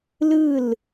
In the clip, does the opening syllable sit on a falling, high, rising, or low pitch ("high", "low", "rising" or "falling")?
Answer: falling